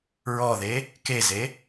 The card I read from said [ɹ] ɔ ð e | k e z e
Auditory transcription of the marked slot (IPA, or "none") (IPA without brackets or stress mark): ɹ